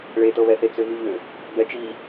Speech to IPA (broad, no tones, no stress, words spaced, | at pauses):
ɭetɤβɛθe t͡sʏvʉʎʏ | bɛt͡ʃi